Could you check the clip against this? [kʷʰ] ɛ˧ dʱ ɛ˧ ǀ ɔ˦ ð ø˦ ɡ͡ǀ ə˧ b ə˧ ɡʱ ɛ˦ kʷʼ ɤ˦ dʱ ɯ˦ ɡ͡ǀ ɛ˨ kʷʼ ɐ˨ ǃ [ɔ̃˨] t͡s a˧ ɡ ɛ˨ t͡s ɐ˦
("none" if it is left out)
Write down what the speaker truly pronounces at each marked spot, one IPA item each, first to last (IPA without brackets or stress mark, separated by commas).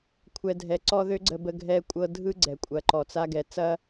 kʷʰ, ɔ˨